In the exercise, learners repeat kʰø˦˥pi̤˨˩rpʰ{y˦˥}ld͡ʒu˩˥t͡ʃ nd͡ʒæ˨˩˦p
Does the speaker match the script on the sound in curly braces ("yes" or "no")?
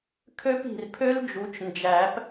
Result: no